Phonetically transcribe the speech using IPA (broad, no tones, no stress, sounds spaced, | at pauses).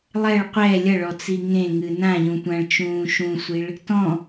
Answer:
lˠ ɛ ɭ qʷ ɛ lʲ ɐ ɭ ɔ t͡s i ŋ ẽ ŋ ɨ n ã ʎ ũ tʷ ã ɭ t͡ʃ ũː ʃ ũ sʷ i ɭ | t ɔ̃